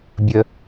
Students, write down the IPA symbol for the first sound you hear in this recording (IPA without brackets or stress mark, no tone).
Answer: bʲ